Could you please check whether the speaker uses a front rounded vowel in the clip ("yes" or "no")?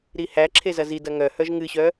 yes